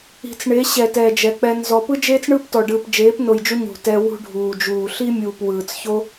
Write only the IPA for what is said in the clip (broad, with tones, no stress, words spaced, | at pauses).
i̤˨t͡sɳe˨˦ɕɛ˨ tɛː˨d͡ʒɛ˨k͡pɛ˧nzɔ˧ pɯ˦d͡ʒeː˦t͡sɳɯː˦ptɔ˨ ɖɯː˨pd͡ʒeː˨˦pno˨jd͡ʒu˧ ɲṳ˨ tɛ˧ wṳ˦ɖʱuː˨d͡ʒuː˨ ɬi˦mʲuː˨p wɯː˨t͡sço˦